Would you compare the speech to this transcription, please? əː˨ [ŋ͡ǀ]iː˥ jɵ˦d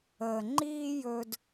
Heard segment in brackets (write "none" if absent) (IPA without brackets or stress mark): ŋ͡ǃ